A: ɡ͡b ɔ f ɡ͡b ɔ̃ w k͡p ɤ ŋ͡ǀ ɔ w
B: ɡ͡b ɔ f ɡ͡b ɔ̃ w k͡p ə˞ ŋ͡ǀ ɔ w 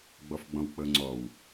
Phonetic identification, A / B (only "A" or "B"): A